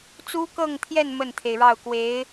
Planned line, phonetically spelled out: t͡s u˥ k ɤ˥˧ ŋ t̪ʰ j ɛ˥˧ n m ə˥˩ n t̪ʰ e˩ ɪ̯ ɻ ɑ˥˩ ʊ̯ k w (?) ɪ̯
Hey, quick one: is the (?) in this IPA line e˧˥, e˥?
e˧˥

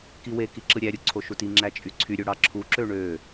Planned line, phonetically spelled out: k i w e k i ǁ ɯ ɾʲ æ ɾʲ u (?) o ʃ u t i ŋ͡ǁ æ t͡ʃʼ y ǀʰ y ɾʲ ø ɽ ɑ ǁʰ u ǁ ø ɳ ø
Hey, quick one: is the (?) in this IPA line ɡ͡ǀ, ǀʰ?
ǀʰ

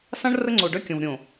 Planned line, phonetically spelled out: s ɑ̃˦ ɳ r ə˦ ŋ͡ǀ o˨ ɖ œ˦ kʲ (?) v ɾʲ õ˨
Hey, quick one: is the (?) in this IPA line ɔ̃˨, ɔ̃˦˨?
ɔ̃˨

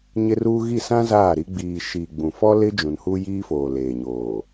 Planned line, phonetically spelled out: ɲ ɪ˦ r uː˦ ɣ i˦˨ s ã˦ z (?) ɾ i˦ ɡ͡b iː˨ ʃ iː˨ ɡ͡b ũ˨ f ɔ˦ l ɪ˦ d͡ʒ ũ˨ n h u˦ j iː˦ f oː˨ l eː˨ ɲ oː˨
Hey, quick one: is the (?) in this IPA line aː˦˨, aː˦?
aː˦˨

